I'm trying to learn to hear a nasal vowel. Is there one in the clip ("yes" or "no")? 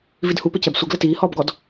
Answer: no